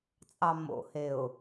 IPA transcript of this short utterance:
t͡sʼ ɑ m o̰ h e ʊ̯

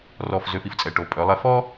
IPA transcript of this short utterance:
r ɔ˧˩ f z ø˧ f i˥ f t͡sʼ ɛ˩˧ ʈ o˩˧ pʼ œ˩˧ lˠ ɛ˧ f ɔ˥

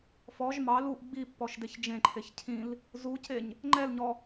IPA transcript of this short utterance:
f ɔ ʒ m ɑ l u ʔ ɡ͡b i pː ɔ ʃ d e ç d͡ʒ ẽ ǃʰ e ç cʰ ĩ l | z u c e ɲ | ŋ͡ǃ ɛ l ɲ ɔ

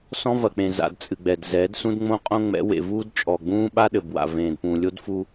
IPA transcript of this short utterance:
s ɔ̃˦ v ɐ˨ k͡p ẽ˨ z a̰˨ d t͡sʼ ɨ˨ ɡ͡b ɛ˨ d z ɛ˨˦ d s ũ˦ d ŋ͡m õ˦ qʼ õ˦ ŋ͡m ɛ̰˨˦ w ḛ˨ v uː˦ d t͡ʃʼ ɔ˨ ɡ͡b ũː˦ ɓ a˦ ɗ ɘ˨ b w a̰˨ v ẽː˨ d p ũ˨ lʲ o˦ d f u˦

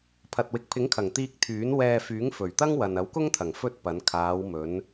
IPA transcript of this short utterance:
pʰ ɐ˨ t̚ w ɪ˨ k̚ pʰ ɪ˨˥ ŋ kʰ ɐ˨˩ ŋ t̪ iː˧ k̚ t̪ʰ yː˨˥ n w ɛː˧ f yː˨˥ ŋ f ɵ˨˩ ɥ t̪ ɐ˥ ŋ w ɐ˨ n ɐ˨˥ w k ʊ˥ ŋ t̪ʰ ɐ˨˩ ŋ f ɵ˥ t̚ p ɐ˨˧ n kʰ aː˨˧ w m ɵ˨˧ n

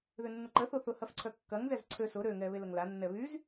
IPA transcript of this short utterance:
ð ʏ nː ʊ ǃ ə θ o θ ʊ h ɐ f ǀʰ œ kː ɐ ŋ z ɛ z ǀʰ ø s ʊ ɾ ø ŋ ɛ β e l ə ŋ l a nː ɛ β y z

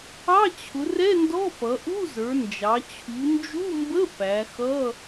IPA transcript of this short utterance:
ɑ˧˥˧ t͡ɕʰ ʊ˩˧ r ɛ˧˥˧ n d ɔ˧˥˧ p ʌ˩˧ ʔ u˧˥˧ z ə˞˩˧ n d͡ʒ ɑ˩˧ t͡ɕʰ u˩˧ n d͡ʒ u˧˥˧ m b ə˧˥˧ p æ˩˧ x ʌ˧˥˧

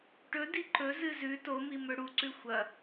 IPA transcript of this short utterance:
ʈ ɵ d i ǃ ɵ z ɨ z ʉ t o m i m ɵ ɽ u ǀ ʉ xʷ ɐ

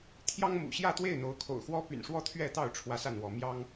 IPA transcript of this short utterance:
t̪ʰ j ɑ˦ ŋ m ṵ˨˩ ɕ j ä˥˨ t̪ w e˥˨ ɪ̯ n̪ o˨˦ ʊ̯ kʰ o̰˨˩ ʊ̯ x w ɔ˦ p y̰˨˩ n ʂ w ɔ˥˨ t̪ʰ ɥ ɛ˥˨ t̪ ɑ˥˨ ʊ̯ ʈ͡ʂʰ w ä˦ s a˥˨ n w ɔ˨˦ m j ɑ˦ ŋ

